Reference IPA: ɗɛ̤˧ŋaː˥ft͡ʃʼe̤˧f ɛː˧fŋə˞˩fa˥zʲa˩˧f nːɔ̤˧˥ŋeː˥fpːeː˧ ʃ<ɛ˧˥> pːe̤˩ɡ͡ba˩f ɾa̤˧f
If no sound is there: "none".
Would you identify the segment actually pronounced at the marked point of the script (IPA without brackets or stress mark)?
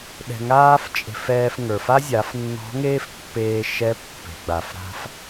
ɛ˧˥